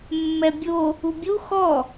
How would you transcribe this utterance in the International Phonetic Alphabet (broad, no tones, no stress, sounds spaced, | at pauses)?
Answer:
mː ɛ bʲ o | u bʲ u x ɔ